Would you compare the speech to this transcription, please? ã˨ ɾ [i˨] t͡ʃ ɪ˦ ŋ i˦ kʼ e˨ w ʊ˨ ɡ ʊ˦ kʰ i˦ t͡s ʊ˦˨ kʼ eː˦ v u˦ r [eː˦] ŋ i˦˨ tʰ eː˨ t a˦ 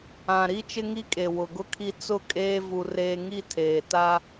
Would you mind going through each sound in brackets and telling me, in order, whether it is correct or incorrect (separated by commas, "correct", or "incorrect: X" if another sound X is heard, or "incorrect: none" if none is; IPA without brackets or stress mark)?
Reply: incorrect: i˦, correct